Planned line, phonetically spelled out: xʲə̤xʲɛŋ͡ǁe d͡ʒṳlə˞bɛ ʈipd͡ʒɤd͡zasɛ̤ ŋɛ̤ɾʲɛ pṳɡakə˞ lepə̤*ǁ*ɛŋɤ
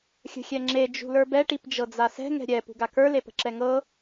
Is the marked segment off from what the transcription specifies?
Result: no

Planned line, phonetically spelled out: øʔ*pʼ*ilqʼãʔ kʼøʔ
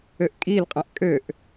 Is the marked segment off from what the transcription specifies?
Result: yes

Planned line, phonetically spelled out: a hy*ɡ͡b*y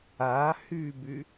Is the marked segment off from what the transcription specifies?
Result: yes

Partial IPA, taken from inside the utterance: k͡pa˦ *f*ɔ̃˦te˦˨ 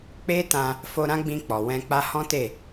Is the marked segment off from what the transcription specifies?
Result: yes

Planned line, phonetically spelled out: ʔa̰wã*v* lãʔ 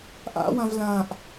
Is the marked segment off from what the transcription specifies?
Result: no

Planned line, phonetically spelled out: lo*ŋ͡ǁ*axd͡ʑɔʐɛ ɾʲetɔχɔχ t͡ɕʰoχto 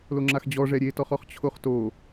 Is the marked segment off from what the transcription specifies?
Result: no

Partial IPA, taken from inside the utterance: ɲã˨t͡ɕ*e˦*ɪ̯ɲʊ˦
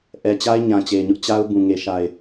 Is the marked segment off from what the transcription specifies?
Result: yes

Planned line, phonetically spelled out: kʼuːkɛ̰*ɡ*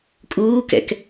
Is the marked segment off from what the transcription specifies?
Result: yes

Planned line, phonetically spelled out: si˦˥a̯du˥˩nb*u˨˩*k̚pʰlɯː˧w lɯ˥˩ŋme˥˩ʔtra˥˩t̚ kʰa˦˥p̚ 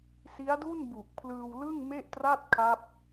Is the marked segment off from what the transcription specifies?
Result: no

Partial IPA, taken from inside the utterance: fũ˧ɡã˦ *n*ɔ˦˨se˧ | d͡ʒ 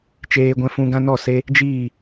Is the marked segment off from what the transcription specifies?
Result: no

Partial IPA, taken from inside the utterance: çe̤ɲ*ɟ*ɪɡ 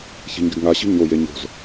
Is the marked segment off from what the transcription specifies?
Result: yes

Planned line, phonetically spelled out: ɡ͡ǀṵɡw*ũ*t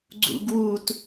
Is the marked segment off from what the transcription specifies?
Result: yes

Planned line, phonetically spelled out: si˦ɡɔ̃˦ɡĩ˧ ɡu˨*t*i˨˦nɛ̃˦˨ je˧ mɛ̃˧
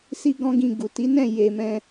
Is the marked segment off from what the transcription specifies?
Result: no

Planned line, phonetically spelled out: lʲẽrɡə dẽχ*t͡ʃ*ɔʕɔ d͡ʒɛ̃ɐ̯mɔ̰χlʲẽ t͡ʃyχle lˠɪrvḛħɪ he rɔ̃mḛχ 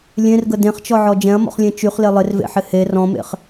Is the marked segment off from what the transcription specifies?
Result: no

